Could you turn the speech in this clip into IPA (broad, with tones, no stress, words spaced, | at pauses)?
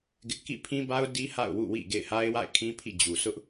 ɡɪ˦ʔ kḭ˦˨pʰĩ˦ba˦ʊ̯ di˦ ha̰˦˨ʊ̯wṵ˦˨wḭ˦˨ ɡḛ˦˨ɪ̯ha˦ɪ̯wa̰˦˨ɪ̯kʰĩ˦ pʰḭ˦˨d͡ʑu˨ sʊ˦ʔ